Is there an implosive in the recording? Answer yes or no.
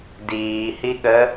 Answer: yes